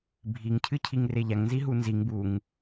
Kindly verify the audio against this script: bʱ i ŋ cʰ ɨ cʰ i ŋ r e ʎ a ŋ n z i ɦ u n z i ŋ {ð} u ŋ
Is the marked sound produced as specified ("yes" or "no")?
no